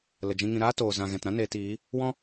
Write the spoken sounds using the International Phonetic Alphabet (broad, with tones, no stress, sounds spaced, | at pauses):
l ə˨ d͡ʒ ĩ˧ ŋ ĩ˧ ɾ aː˦ t oː˨ z ã˨ ɣ ɛ̃˨ t ɾ ã˦ n eː˧ t iː˨˦ | w ɔ̃˦